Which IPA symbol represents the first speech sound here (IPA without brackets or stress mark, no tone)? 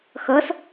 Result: x